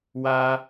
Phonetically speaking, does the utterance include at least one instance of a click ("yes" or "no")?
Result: no